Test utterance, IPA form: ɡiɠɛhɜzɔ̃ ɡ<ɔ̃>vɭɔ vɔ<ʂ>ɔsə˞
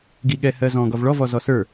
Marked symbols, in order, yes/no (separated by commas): no, no